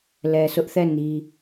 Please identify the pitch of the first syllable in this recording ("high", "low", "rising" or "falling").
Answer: low